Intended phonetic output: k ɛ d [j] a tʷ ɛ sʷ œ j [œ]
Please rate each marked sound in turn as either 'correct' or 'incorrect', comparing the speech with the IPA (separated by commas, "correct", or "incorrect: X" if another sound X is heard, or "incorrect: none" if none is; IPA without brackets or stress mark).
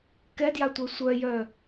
correct, correct